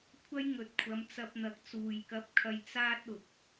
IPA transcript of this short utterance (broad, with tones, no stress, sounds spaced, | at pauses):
kʷʰ ɐ˥ j ŋ ɵ˨ t̚ kʷʰ ɐ˨˧ m t͡s ɐ˧ p̚ n̪ ɐ˨ k̚ t͡s uː˨ j k ɐ˧ p̚ kʰ ɐ˧ j t͡s aː˥ t̚ ʊ˨ k̚